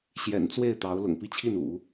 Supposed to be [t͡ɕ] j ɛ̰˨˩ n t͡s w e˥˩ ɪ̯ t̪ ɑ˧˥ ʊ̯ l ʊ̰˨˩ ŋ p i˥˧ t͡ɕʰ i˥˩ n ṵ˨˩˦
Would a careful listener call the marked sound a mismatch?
yes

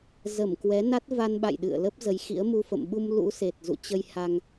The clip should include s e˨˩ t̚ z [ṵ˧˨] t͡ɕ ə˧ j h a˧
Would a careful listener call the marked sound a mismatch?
no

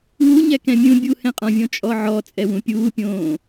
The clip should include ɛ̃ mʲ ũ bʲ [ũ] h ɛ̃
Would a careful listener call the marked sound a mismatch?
yes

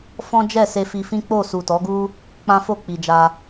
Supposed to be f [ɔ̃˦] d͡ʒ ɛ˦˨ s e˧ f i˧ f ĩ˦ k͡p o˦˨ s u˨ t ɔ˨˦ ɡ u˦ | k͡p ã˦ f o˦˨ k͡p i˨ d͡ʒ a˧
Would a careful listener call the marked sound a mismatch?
no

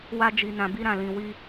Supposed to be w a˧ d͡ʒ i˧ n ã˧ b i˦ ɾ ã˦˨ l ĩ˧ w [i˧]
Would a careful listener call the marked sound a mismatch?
yes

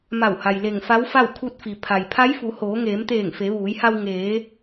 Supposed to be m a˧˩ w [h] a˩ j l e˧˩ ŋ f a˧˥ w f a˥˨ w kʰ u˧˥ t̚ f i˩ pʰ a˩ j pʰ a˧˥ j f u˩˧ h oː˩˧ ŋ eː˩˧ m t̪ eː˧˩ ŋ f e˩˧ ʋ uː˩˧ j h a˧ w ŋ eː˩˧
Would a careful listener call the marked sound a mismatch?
no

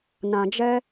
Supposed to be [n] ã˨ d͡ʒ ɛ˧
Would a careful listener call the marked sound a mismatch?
no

